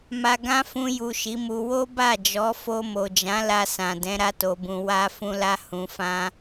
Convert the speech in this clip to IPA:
m a˧ ɡ ã˦ f ũ˧ j u˨ ʃ i˨˦ m u˧ w o˦ b a˦˨ d͡ʒ ɔ˨˦ f o˧ m o˨ d͡ʒ ã˨˦ l a˧ s ã˨ d ɛ̃˨˦ ɾ a˧ t o˨ b ũ˨ w a˧ f ũ˧ l a˧ h ũ˨ f ã˧

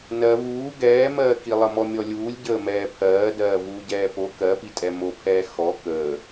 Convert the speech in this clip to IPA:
n ɜ v uː ɡ ɛː m ɜː k i lˠ ə m ɔ mʲ ɔ lʲ uː lʲ ɟ əː m ɛː pʰ ɜː d ɜː v uː ɟ ɛː p o k ɜ p i tʼ ɛ m o pʰ ɛː x ɔ k əː

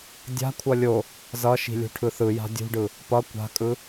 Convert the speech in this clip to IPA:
dʲ a̤ kʷʰ ʌ lʲ o | z ʌ ʃ i̤ lʲ ṳ ʈʰ ɯ θ ɯ j a̤ dʲ ṳ ɖ ɯ | p ʌ kʷ a̤ kʼ ɯ

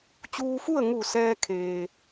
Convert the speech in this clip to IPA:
t͡ɕ uː˧ f u˥˨ ə̯ ŋ u˧˩ s ɛː˧ kʰ eː˩

